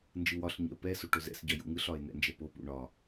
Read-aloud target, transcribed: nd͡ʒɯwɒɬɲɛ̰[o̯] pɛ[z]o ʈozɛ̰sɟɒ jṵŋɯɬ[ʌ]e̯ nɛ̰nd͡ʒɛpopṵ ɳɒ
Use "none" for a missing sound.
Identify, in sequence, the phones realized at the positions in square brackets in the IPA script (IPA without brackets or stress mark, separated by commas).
o̯, s, ɒ